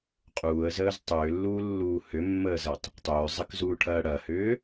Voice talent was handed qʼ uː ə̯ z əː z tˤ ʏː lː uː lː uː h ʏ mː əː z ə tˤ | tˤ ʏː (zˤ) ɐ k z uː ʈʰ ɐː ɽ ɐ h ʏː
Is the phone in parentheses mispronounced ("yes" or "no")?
no